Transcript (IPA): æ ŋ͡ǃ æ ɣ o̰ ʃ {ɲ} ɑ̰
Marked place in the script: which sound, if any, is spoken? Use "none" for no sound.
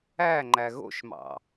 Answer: m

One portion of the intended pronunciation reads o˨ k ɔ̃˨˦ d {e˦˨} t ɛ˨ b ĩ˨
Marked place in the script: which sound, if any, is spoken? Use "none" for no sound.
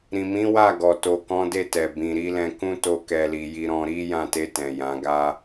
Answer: e˦˨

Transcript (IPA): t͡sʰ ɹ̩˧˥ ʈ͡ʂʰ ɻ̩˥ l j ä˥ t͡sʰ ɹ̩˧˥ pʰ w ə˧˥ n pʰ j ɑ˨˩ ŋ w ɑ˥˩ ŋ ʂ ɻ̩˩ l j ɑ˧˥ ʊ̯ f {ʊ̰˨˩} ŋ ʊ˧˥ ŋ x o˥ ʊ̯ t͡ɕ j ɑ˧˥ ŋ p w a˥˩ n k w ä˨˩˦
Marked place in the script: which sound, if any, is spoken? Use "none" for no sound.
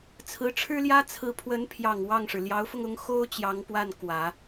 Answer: ʊ˧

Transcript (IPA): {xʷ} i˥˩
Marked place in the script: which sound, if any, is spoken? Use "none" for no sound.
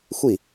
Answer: xʷ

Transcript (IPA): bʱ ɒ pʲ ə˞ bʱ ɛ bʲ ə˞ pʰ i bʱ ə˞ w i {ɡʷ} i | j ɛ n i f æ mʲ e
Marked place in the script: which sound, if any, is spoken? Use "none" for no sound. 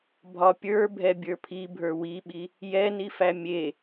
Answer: ɓ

